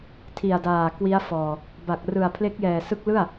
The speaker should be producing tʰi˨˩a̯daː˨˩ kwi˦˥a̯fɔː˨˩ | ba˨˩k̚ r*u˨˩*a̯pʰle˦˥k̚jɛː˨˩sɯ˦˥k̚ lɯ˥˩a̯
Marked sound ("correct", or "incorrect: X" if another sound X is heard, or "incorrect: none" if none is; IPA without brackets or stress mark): incorrect: ɯ˨˩